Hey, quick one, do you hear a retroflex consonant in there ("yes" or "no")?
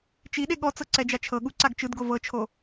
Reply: no